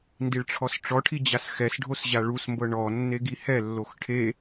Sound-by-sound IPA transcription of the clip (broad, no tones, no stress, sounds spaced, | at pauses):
n d i ɭ ʈ͡ʂʰ ɔ s ʈ͡ʂ ɔ ʈʰ i d͡ʑ a s x ɛ s ɖʱ o s ʑ a ɭ u s m b ɤ ɳ ɔ nː e ɡ i h ɛ lː o x ʈʰ e